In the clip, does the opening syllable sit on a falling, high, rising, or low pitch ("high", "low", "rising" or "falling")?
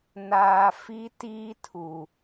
low